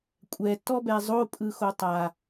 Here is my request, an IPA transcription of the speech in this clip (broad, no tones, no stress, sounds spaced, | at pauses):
kʷʼ ɛ t ɔ b ɛ zˤ o pʼ ɯ x o tˤ a